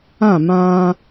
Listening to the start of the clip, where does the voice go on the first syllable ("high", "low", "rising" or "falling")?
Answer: falling